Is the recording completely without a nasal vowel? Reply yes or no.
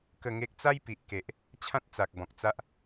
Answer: no